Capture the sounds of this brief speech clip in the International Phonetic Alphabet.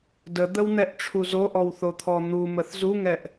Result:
d ə d̪ ə w n̪ ɛ ʔ ʈ͡ʂʰ u z o ʔ ɔ w θ o t̪ʰ ɔ n̪ u m ə θ z u ŋ ɛ ʔ

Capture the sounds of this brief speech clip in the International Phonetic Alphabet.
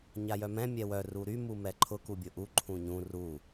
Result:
ɲ a j œ m ɛ̃ mʲ ɛ w œ r u ɾ y m u m ɛ ǃʰ ʊ k u bʲ ʊ ʔ u ǃʰ ũ ɲ ũ r u

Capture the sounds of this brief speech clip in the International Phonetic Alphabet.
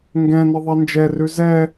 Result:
ŋ ɡ ɛ̃ n ə ðˤ ɛ n d͡ʒ ɛ r ʉ z ɛ

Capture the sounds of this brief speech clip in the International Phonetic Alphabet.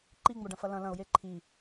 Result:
ǃ i ŋ͡m o ɖ ɐ̃ f ɐ l ɐ̃ l ɐ̃ ʊ̯ j e ǃʰ i

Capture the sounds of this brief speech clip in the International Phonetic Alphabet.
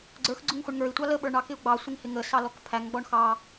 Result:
ɡ͡ǀ ə˞ x ɡ͡ǀ ʊ ŋ χʷ ɪ ɳ ŋ ə˞ i̯ tʷ ɑ l ə ɓ ə˞ ɳ ɑ k ɪ u̯ ɡ͡b ɑ sʷ ɪ ŋ h ɪ ŋ ə s ɑ l ɔ k pʰ æ ŋ ɡ͡b ɔ ɳ x ɑ

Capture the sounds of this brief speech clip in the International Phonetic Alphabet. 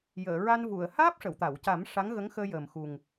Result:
j əː˨˩˨ ɹ a˧ n v u˨˩˨ ə̯ h aː˦˥ p̚ ʂ ə˨˩˨ w t̪ a˨˩˨ w c a˨˩˦ m ʂ a˧˥ ŋ ɣ ə˧˥ ŋ x əː˧ j əː˨˩ m x u˨˩ ŋ

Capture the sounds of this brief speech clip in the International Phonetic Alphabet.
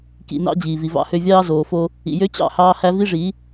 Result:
k ḭ˨ n ɑ̰˦ d͡ʑ iː˨ v i˨ v ɑ̰˦ h ø˦ vʲ ɑː˦ z oː˨ f o˦ | ḭ˨ j ø˦ t͡ɕ ɑ̰˦˨ h ɑː˦ h æ˦ v i˦ ʐ i˨˦

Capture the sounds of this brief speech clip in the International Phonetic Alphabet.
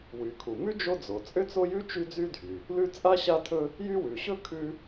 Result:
w y˩ kʰ u˩ m ʉ˥ d͡ʒ o˥ d͡z o˩ t͡sʼ ʏ˥ t͡s o˥ j ʉ˥ t͡ʃ y˥ d͡z y˥ dʱ y˩ | l ʉ˥ t͡sʼ a˥ ɕ a˥ tʰ ɵ˥ | j y˥ w ʉ˩ ɕ ɵ˥ kʰ ʉ˥

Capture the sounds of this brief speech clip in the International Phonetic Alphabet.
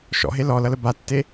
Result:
ʃ ɔ̰ ɦ e l ɔ l ʌ l ə b a tː e

